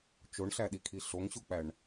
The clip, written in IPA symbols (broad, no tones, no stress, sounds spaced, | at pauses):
t͡ʃ o ɳ ɬ æ ɗ i kʰ i ɬ o ŋ ɕ u k͡p æ ɳ